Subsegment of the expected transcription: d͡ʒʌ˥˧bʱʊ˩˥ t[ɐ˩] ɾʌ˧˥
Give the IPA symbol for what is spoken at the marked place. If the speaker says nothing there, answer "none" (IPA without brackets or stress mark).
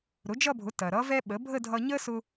ɐ˩